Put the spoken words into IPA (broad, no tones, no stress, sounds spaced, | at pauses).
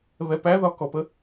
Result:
β ɛ p æ ð ɒ k ɔ p ə